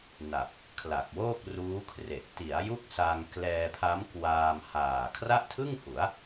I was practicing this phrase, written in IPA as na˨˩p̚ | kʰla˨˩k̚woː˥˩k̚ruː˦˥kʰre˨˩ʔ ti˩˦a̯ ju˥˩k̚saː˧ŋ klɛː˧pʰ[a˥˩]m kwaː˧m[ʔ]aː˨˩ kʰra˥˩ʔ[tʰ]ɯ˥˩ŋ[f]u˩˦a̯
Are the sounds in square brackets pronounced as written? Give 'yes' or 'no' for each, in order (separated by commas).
no, no, yes, no